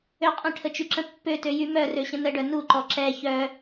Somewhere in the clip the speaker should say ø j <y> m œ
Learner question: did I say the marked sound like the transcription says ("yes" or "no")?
yes